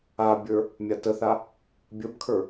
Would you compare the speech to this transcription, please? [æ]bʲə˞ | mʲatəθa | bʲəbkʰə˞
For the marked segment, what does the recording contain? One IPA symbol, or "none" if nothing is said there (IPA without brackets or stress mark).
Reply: a